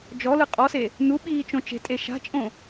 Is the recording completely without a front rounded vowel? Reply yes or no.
yes